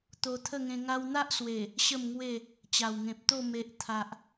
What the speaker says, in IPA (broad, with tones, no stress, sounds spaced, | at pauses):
t̪ o˧ t̪ʰ ə˥˧ ŋ ẽ˧ ŋ a˧ w n̪ a˦ ʔ s w e˨˩ | ɕ ə˥˧ m ŋ w e˥˧ | t͡ɕ a˨˩ w ŋ ẽ˨ p̚ t̪ o˥˧ m e˨ ʔ t̪ʰ a˨ ʔ